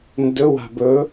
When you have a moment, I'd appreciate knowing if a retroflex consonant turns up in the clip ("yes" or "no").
no